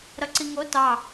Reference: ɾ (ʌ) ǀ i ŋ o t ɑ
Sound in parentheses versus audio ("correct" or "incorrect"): correct